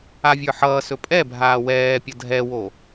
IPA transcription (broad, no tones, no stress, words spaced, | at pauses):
avʲə˞ħʌːsɵ pʼɛbʱaː wɛːpʲʌ dʱɛwo